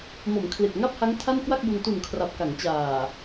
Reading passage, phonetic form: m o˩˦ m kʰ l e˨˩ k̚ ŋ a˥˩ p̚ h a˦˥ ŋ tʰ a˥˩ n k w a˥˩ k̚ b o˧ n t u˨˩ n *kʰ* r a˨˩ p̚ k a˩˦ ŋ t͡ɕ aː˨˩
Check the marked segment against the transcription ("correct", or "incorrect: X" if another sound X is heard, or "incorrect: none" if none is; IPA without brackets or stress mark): correct